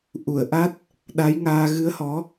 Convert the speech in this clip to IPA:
ʔ u˧˩ ə̯ ʔ a˦˥ t̚ | ɗ a˨˦ j ŋ aː˧ ɣ ɨ˨˦ ə̯ h ɔ˨˦

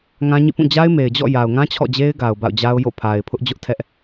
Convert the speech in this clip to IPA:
ŋ ã˦ ɲ ḭ˦˨ p ũ˦˨ d͡ʑ a˦ ɪ̯ m e˨ ɪ̯ d͡ʑ ɔ̰˦˨ j a˨ ʊ̯ ŋ ã˦ t͡ɕʰ ɔ̰˦˨ d͡ʑ e˦ ɪ̯ ɡ a˨ ʊ̯ b a̰˦˨ ʊ̯ d͡ʑ a˦ ʊ̯ j o̰˦˨ pʰ a˨ ɪ̯ pʰ ʊ˦ ʔ d͡ʑ ʊ˦ ʔ tʰ ɛ˦ ʔ

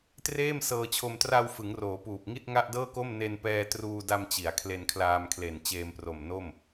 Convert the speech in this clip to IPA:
t r eː˥˩ m s ɤː˧ t͡ɕʰ o˧ m t r a˧ w f ɯ˩˦ ŋ r oː˩˦ p uː˨˩ p̚ ŋ i˥˩ t̚ ŋ a˥˩ ʔ d ɤː˥˩ k o˥˩ m n e˧ n p ɛː˧ t r uː˧ d a˧ m t͡ɕ i˩˦ a̯ kʰ l e˧ n kʰ l aː˧ m kʰ l e˨˩ n t͡ɕ eː˧ m p r o˨˩ m n o˥˩ m

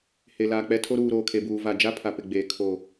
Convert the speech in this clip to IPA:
h e˨ l aː˨ k͡p ɛ˦ tʰ o˦ ɾ uː˨ ɾ oː˨ kʰ e˨ b uː˨ v a˨ d͡ʒ a˦ pʰ a˨ p ɪ˨ ɡ͡b eː˨ kʰ o˦

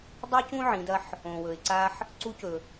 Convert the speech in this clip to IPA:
dˤ i˥ c ũ˥ ʕ ĩ˩˧ d ɐ˧ ħ | õ˩ w ɵ˩ ɪ̯ ǀ a˧ ħ | ǀ u˧˥ c ɵ˩

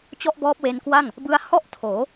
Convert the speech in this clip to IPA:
t͡ɕ ɔ˥˩ ʔ b ɔː˦˥ p̚ w e˧ n k w a˥˩ ŋ | b ɯ˧ a̯ h ɔ˥˩ ʔ tʰ oː˩˦

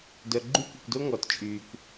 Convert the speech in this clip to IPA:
d œ˨ ɡ͡ǃ y˦ kʷ ə˨ kʷ d o˦ ŋ ɔ˨ t t͡ʃʼ yː˨ kʷ

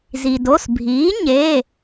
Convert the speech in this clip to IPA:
z i˩ d o˩˧˩ s bʱ iː˩˥ ɲ e˩˧˩

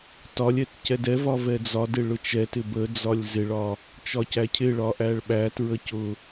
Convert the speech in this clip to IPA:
t ɒ lʲ ɛ t c ɛ d ɛ v ɒ v ɛ d͡z ɒ d ɪ ɭ ʊ t͡ʃ ɛ t ɪ b ə d͡z ɒ lʲ z ɪ ɭ ɒ | t͡ʃ ɒ c æ cʰ ɪ ɭ ɒ ʔ æ ɭ ɓ æ t ɹ ə c ʊ

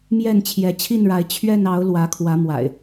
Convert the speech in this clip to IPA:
m j ɛ˥˨ n t͡ɕʰ j ɛ˨˦ t͡ɕʰ i˥˨ n ɻ a˨˦ ɪ̯ t͡ɕʰ ɥ ɛ˥˨ n ɑ˨˦ ʊ̯ l w ä˨˦ kʰ w ä˨˦ m w a̰˨˩ ɪ̯

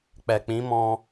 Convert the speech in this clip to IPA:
k͡p ɛ˨ k͡p ĩ˨˦ m ɔ̃˧

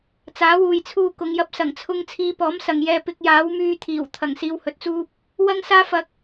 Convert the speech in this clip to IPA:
t͡s aː˨˥ w uː˨ j t͡sʰ uː˧ k ʊ˨˧ ŋ j ɐ˧ p̚ s ɐ˨˩ ŋ t͡sʰ ʊ˧ ŋ t͡sʰ iː˧ p ɔː˨˥ m s ɐ˨ ŋ j ɛː˧ p ɪ˧ k̚ j aː˨˥ w m yː˧ t̪ʰ iː˨˩ w t̪ʰ ɐ˨˩ ŋ s iː˧ w h ɵ˨ t̚ t͡s uː˥ p̚ | w ɐ˥ ŋ s aː˥ f ɐ˧ k̚

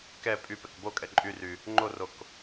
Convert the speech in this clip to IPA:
k ɛ pʼ y p ɛ k b o kʼ ɛ ǃʼ y r y | ŋ͡ǃ o r o k

